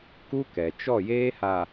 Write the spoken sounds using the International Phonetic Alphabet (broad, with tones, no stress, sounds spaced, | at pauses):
k u˦ k ɛ˨ t͡ʃ ɔ˦˨ j eː˦ h a˨